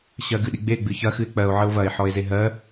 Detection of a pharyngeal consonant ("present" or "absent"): present